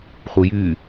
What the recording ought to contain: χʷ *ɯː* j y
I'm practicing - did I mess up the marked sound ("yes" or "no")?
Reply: yes